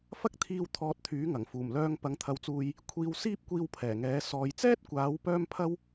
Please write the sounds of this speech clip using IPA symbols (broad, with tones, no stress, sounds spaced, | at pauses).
f ɐ˥ k̚ t̪ʰ iː˧ w t̪ʰ ɔː˧ t̚ t̪ʰ yː˨˥ ŋ ɐ˨˩ ŋ f uː˨˩ m l œː˧ ŋ p ɐ˨ ŋ t̪ʰ ɐ˨ w t͡s uː˨ j | kʷʰ iː˧ w s iː˥ p̚ kʷ iː˧ w pʰ ɛː˨˩ ŋ ɛː˨˥ s ɔː˨ j t͡s ɛː˥ t̚ kʷ aː˨˥ w p œː˥ m pʰ ɐ˥ w